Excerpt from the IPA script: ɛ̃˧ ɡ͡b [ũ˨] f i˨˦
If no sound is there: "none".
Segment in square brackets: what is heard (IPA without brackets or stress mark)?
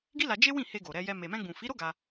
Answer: ũ˨